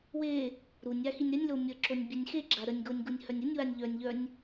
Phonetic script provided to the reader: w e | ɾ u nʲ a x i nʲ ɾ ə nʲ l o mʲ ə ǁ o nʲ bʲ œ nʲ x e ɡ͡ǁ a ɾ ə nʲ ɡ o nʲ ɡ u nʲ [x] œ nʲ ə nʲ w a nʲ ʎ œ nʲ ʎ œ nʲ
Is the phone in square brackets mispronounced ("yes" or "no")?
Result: yes